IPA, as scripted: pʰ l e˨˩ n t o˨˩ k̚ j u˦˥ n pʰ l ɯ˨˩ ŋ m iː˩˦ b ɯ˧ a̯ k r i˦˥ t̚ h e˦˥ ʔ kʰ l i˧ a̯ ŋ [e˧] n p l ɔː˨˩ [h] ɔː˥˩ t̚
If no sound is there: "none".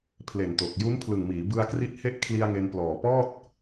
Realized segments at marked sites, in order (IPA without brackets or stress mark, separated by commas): e˧, p